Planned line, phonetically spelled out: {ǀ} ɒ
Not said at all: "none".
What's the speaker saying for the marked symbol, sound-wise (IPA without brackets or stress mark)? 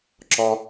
ǁ